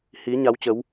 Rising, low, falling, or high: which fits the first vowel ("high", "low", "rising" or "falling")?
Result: rising